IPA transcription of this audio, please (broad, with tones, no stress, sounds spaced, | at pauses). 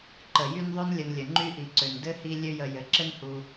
ǃ ə˩ j y˦ n ðˤ ø˥ n lʲ ə˨ n lʲ ə˩ ŋ͡ǃ y˥ ʔ i˩ ǀ ø˩ n d ɘ˥ h i˦ lʲ ø˦ j ə˨ j ɘ˨ ǁ ɘ˥ n h u˨